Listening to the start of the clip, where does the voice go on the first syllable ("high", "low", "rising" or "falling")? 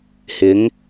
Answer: rising